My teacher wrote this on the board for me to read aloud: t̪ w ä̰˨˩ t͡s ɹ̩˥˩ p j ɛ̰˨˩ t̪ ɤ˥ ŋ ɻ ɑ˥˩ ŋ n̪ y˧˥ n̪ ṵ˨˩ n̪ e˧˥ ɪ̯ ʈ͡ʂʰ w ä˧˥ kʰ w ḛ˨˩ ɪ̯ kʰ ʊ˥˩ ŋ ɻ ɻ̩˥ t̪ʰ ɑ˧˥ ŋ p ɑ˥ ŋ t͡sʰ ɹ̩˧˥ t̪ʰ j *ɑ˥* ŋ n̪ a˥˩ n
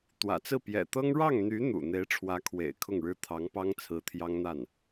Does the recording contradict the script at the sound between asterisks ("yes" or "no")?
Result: no